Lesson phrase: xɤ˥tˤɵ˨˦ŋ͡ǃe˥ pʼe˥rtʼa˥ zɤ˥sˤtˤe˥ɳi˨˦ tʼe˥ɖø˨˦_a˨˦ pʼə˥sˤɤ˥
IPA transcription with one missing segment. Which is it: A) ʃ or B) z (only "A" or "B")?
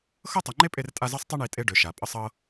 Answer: A